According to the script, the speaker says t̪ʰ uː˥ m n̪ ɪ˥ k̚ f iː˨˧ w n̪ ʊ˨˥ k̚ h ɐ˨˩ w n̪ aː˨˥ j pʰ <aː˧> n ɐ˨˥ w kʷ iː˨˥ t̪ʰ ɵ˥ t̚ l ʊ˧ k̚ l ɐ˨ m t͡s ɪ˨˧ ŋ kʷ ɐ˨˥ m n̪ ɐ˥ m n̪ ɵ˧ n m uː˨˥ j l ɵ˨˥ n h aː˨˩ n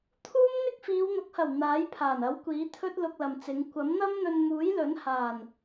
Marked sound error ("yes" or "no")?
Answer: yes